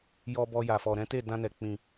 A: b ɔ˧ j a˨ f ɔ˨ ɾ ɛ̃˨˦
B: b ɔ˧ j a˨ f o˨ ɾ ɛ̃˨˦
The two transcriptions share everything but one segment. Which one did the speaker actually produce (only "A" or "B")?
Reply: A